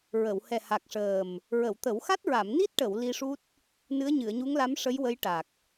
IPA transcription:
ɹ ə˨˩˨ w h ɛ˨˩ h a˨˩ k̚ ʂ əː˨˩ m | ɹ ə˨˩˨ w t̪ ə˨˩˦ w x a˦˥ t̚ ɹ a˨˩˨ m n i˦˥ t̚ ʈ ə˨˩˨ w l i˧ ʂ u˦˥ t̚ | n ɨ˧˥ ə̯ ɲ ɨ˨˩˨ ə̯ ɲ u˧˥ ŋ l a˧˥ m ʂ ə˧˥ j w ə˧˥ j ʈ a˨˩ k̚

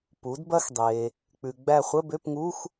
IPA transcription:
p u˩˥ d b ɐ˥ x dˤ eː˨ | k͡p ʉ˨ ɡ͡b æ˦˨ χʷ ə˧˥˧ b ø˧˥˧ p ŋ uː˧˥˧ x

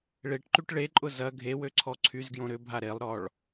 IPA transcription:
ɭ e ʈ ǃ y ʈ ɭ e ǃʼ ʊ z ɐ ɡʱ e w ø ǀʰ ɔ ǀʰ y z ɡ j õ ɾ ʏ bʱ a ɾ e lˠ ɾ ɔ ɭ

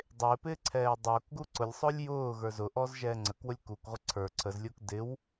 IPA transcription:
dˤ ɪː p ɪː ǀʰ ɛː dˤ ʊː k ɡ u ǀ ʊ lʲ sˤ ʊː lʲ j ʊː ɣ ə˞ z ʊ ʔ ɔ z ʒ ɛː ŋ͡ǀ ə k w ʊ lʲ k u k ʁʷ ə ǀʰ ə˞ ǀʰ ə z lʲ ʊː k d ɪ w

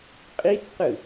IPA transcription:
qʼ i t͡s q ɯ

